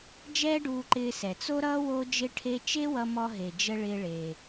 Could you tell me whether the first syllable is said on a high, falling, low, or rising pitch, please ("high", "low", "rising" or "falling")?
high